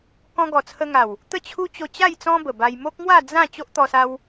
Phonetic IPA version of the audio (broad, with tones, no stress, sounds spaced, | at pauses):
k ɔ̃˧ ɡ ɔ˨˩ t͡sʰ ə˧ ŋ a˨˩ w | t̪ ə˥˧ t͡ɕʰ u˦ t͡ɕ o˧ t͡ɕ a˥˧ j t͡s ɔ̃˦ b ə˨˩ b a˧ j m o˦ k̚ ŋ w a˥˧ d͡z ã˥˧ t͡ɕ o˦ ʔ t̪ ɔ˧ s a˧ w